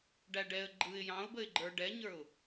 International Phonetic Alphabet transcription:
ɖ æ ɖ ɛ ə̯ ɡ͡ǃ ɯ ɪ̯ j ɑ̃ ʊ̯ b ə ɪ̯ ɡ͡ǃ ə˞ ɖ ɛ ɲ ə˞ ʊ̯

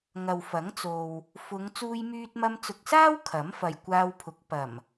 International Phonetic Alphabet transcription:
ŋ ɐ˨ w f ɐ˨˥ ŋ t͡s o˨ w | f ʊ˨˧ ŋ t͡s uː˧ j m yː˧ t̚ m ɐ˧ m t͡s ʊ˨ k̚ s aː˥ w kʰ ɐ˨˥ m f ɐ˨ j kʷ aː˧ w pʰ ʊ˨˥ k̚ p ɐ˨˩ m

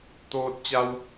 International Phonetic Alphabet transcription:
t̪ oː˧ t̚ t͡ɕ a˧ w

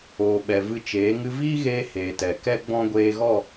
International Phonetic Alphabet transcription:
oː˨ ɓ ɛ˨ v ɨ˧ t͡ʃ eː˨˦ ŋ ɨ˧ v iː˦ ɣ eː˧ h eː˨ t ɛ˨ k ɛ˦ ɡ͡b ɔ̃˦ ɡʷ eː˧ ɣ ɔ˦˨

